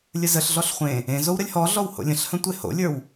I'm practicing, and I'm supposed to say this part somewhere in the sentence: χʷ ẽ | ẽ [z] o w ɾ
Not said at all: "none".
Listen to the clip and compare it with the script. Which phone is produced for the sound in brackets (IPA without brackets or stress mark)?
z